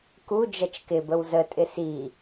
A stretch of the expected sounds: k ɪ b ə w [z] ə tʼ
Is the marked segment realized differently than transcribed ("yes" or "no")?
no